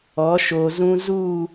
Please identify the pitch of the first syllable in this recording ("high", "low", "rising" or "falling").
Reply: rising